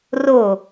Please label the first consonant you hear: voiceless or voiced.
voiced